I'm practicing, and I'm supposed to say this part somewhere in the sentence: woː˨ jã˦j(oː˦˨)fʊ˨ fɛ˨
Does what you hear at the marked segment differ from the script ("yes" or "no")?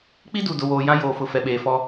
yes